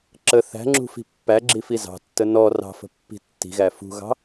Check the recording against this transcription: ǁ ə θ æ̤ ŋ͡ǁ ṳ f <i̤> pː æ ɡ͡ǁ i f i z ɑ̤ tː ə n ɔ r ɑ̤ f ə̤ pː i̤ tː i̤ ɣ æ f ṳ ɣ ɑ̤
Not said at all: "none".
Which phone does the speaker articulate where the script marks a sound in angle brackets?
i̤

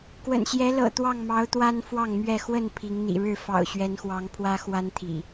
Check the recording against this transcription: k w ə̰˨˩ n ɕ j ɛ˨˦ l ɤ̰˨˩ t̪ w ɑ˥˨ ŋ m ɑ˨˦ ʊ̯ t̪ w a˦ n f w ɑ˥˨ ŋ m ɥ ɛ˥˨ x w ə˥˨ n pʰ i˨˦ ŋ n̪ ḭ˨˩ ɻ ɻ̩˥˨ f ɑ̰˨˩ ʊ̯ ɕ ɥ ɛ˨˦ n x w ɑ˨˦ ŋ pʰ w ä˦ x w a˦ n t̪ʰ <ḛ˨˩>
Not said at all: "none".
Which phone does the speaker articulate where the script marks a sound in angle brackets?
ḭ˨˩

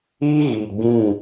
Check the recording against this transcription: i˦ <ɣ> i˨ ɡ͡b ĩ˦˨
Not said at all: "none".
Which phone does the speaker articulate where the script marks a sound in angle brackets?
ɣ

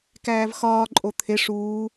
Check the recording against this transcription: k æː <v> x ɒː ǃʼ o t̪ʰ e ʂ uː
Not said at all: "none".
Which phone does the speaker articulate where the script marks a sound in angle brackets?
v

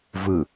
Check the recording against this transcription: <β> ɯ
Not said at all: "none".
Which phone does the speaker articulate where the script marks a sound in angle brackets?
v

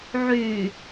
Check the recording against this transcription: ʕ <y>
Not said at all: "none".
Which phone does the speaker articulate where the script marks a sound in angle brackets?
y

